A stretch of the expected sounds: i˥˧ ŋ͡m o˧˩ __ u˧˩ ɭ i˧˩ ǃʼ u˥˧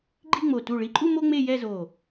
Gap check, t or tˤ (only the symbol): t